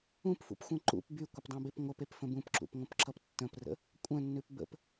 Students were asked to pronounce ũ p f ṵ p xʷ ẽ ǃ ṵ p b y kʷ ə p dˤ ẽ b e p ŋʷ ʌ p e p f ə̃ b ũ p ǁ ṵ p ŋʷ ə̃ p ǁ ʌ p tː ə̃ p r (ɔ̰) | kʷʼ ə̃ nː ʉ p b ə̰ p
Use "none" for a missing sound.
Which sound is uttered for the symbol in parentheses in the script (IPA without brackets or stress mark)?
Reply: ə̰